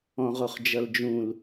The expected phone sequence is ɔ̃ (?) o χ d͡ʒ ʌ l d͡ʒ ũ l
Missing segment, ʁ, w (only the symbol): ʁ